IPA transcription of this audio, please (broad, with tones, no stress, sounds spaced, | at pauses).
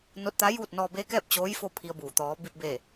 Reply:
n o˧˥ t̚ t̪ a˧˥ j uː˥˨ t̚ n ɔː˧ b eː˧˥ k ɛː˥˨ p̚ t͡ɕ oː˧˥ j f o˥˨ pʰ i˧ ə̯ b uː˧˩ t̪ ɔː˧˥ b i˧ p̚ b eː˧˩